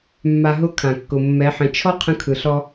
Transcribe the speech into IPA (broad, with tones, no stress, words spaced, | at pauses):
mːa˧ ɦʊ˦ kʰã˨kːʊ˨ mːɛ˨˦ħə̃˨˦ t͡ʃʰɔ˦ qʰə̃˧kʰɯ˨ɬɔ˧